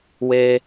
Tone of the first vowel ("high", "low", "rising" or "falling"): high